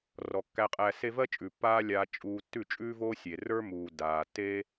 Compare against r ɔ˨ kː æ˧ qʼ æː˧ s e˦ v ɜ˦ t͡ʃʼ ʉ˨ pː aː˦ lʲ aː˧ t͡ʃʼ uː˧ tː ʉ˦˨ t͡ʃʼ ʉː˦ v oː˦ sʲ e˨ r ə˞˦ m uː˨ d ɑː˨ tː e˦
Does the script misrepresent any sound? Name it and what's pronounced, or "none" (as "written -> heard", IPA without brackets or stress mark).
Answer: ɑː˨ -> aː˨